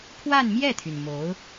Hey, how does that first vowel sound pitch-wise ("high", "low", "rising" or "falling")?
falling